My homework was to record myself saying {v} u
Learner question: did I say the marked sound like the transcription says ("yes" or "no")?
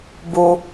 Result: no